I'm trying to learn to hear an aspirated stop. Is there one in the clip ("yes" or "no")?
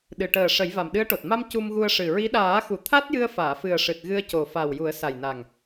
yes